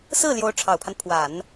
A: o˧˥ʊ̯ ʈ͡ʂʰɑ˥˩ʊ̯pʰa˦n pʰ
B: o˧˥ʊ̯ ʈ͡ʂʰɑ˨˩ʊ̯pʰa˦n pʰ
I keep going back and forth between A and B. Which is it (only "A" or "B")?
B